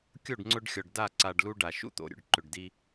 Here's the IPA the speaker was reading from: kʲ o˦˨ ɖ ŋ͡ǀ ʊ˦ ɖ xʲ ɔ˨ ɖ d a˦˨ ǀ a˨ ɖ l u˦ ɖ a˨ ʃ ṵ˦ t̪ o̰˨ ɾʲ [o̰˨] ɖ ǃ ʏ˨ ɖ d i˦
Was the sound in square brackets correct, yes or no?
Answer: yes